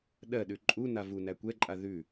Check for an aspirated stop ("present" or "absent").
absent